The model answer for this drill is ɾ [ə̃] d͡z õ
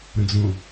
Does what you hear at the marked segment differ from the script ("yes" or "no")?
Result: no